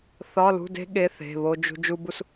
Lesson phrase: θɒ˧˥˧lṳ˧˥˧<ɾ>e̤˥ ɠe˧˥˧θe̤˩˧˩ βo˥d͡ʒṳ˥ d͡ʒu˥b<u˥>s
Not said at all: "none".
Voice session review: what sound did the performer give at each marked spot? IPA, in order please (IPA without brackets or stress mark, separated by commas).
d, u˥